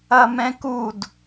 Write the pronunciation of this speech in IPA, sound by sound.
ɐ m ɛ̃ k u d

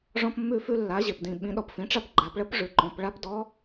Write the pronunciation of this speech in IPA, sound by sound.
ʐ ɔ̃˧ p mː ʉ˧ f ʉ˧ lː a˩˧ ʑ e˩ p d ĩ˩ ɓ ĩ˩˧ ɗ ɔ˩ p f ĩ˩˧ ʈ͡ʂ a˧ p ɡ͡ǃ a˩˧ p ɭ ə˧˥ p ʐ ʉ˩˧ ǃ ɔ̃˩˧ p ɭ a˧˥ p d ɔ˧˥

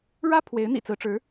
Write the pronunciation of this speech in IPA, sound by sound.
ɻ ä˥ pʰ w e˧˥ ɪ̯ n̪ ḭ˨˩ t͡s ɹ̩˧˥ ʈ͡ʂ ɻ̩˧˥

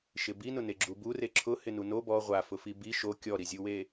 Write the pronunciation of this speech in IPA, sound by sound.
ʃ ɪ b i n ʊ n e ɡ͡ǁ u b u r e ǁʰ ʊ h ɪ n u n o b ɔ ʁʷ a f ʊ f i b i ʃ o kʲ ɔ ɾ i zʲ u w e

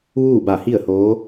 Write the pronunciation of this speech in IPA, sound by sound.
ʋ uː˥˨ b a˧˩ h i˥˨ ə̯ h oː˧˥

